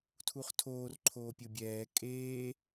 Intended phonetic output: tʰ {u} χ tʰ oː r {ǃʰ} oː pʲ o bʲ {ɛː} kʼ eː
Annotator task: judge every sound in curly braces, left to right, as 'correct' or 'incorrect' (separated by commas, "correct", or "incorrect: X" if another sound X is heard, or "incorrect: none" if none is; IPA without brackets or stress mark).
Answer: correct, correct, correct